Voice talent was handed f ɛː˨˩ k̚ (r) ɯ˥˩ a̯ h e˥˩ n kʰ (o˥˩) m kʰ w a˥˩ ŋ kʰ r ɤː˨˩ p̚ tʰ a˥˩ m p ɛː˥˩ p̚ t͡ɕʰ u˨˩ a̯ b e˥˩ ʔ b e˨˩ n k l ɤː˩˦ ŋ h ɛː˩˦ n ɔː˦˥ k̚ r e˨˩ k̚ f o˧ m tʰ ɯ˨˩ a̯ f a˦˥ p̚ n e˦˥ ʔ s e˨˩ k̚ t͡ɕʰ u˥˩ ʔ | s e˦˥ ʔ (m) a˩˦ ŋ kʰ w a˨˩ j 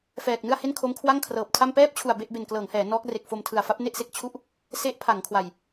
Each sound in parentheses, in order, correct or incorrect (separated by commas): incorrect, incorrect, incorrect